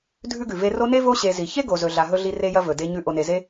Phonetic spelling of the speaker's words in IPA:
dʱʉ˥ɡʉ˩ve˦ ro˦ne˥vo˦ ɕe˨zi˩çe˥ ɡo˨zɵ˨ɮa˨ ɦɵ˥ɮi˦re˥jɐ˥ vɵ˩de˦ ɲʉ˦ ʔo˨ne˨ze˥

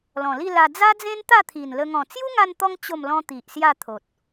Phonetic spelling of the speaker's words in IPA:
lɔ̃˨˩li˥˧la˧ d͡za˦d͡zẽ˦n t̪a˥˧t̪ʰi˨˩nlə˧ ŋɔ̃˨˩t͡sju˦ŋa˧nt̪ɔ˧ŋ t͡ɕo˥˧m lɔ̃˦t̪i˨ʔsja˥˧t̪ʰo˨t̚

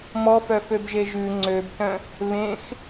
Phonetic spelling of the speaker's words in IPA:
mɔfœføbʒe ʒʉ ŋ͡ǀøbtœ̃ | βẽx

